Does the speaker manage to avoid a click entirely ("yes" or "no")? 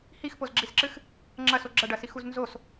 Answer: no